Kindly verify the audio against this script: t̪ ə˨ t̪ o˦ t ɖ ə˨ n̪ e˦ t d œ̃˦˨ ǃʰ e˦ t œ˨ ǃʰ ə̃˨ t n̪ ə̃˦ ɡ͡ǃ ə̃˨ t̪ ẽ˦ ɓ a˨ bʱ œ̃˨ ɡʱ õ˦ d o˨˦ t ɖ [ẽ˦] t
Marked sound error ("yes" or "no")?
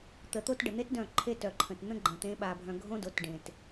yes